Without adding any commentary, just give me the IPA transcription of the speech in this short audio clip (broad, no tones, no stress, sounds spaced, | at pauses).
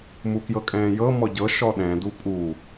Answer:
m u k j ɤ kʼ ɛ̃ː j ɤ m ɔ ɟ ɤ ʃ ɔ ɗ ɛ̃ d u pʼ u